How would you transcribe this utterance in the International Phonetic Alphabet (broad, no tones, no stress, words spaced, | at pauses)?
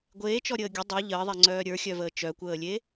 ɡʷeːt͡ʃɔɾʲəː ɡʲə dˤɛ ʎəːðˤɛŋ͡ǀœː ɾʲə˞xʲœvəː t͡ʃœkʷəːlʲe